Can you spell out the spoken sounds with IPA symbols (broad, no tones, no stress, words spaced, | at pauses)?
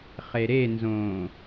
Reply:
χeɾenzõː